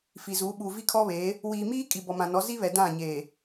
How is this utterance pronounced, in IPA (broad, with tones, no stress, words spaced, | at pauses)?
fi˨zuː˨˦ɓuː˨ vi˦kʰɔ˦βeː˨˦ | wiː˨miː˦ kʼi˨bɔ˨mã˨nɔ˨˦ zi˦βɛ˨ dã˦˨ɲeː˨